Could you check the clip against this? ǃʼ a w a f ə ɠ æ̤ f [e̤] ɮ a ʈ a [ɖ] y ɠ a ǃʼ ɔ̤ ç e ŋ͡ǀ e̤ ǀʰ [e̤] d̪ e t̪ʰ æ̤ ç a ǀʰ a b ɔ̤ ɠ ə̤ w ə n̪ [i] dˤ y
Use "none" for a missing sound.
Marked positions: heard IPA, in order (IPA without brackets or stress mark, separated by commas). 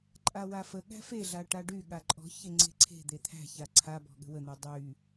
e, ɖ, e̤, y